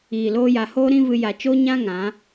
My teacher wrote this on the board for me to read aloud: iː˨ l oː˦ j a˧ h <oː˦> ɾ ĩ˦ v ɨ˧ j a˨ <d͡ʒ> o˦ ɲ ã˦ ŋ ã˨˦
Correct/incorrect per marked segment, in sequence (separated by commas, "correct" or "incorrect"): correct, incorrect